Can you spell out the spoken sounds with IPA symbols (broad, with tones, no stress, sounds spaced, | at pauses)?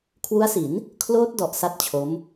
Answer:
kʰ w u˦˥ a̯ s i˩˦ n | kʰ l oː˦˥ t̚ d ɔ˨˩ ʔ s a˥˩ t̚ t͡ɕʰ o˦˥ m